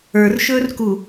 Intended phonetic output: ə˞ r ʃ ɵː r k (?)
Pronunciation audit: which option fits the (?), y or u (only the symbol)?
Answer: u